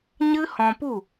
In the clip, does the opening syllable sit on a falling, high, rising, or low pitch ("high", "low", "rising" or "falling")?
high